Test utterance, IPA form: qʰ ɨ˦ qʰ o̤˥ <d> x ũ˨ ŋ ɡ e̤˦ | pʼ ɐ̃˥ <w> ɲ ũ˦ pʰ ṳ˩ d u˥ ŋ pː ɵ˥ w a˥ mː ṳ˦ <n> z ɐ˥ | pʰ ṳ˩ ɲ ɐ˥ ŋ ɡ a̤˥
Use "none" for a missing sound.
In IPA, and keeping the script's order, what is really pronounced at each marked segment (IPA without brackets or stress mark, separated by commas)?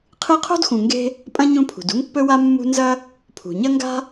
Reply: d, none, n